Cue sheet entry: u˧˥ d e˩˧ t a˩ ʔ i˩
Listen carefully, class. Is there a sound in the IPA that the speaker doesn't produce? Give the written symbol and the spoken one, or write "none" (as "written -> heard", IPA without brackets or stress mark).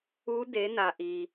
t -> n